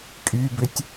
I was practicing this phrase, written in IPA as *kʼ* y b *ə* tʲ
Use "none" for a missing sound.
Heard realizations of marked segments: kʼ, ʏ

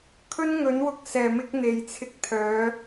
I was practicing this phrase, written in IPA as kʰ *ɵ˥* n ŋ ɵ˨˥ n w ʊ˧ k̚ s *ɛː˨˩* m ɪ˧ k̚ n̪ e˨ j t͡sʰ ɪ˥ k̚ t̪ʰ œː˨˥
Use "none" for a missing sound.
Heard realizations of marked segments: ɵ˥, ɛː˨˩

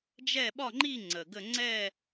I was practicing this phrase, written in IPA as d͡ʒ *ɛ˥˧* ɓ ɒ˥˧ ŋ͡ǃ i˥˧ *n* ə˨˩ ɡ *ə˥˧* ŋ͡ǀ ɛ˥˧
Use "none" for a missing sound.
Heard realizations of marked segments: ɛ˥˧, ŋ͡ǀ, ə˥˧

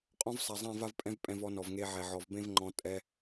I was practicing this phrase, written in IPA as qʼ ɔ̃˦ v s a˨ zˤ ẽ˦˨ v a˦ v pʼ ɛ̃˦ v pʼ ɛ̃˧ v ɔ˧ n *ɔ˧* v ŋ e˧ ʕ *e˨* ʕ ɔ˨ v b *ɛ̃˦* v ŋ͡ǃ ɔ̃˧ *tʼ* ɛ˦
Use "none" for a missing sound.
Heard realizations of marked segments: ɔ˨, ɛ˨, ẽ˦, tʼ

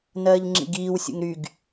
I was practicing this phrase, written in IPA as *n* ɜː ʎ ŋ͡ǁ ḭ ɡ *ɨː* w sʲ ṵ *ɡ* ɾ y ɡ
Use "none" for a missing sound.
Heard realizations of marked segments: n, iː, ŋ

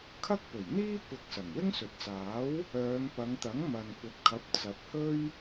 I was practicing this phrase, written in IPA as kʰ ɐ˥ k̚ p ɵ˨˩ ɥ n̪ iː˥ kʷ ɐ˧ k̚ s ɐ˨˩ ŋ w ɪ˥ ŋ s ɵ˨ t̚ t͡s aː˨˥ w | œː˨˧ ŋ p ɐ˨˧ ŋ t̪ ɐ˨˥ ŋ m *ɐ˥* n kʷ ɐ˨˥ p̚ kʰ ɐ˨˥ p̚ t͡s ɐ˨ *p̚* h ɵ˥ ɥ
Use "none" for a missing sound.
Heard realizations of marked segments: ɐ˨, p̚

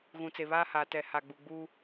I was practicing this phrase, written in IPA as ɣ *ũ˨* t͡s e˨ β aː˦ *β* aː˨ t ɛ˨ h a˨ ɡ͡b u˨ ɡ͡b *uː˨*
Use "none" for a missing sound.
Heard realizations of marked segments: ũ˨, h, uː˦

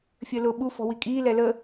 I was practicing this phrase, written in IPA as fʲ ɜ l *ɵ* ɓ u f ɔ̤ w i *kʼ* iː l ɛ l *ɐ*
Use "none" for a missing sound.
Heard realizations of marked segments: ʊ, kʼ, ə

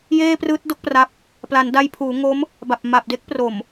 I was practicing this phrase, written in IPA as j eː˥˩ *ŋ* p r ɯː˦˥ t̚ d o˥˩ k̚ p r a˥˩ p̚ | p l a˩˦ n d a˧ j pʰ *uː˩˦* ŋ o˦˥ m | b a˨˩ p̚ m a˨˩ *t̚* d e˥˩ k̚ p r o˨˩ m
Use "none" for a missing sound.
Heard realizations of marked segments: none, uː˩˦, p̚

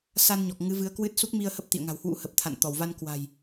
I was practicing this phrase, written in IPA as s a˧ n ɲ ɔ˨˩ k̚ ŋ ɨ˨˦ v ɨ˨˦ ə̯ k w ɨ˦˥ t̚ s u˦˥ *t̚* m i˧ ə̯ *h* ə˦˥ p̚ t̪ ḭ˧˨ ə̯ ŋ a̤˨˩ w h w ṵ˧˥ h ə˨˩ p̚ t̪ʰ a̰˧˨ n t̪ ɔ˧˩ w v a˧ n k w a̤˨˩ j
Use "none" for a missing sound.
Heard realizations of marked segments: k̚, h

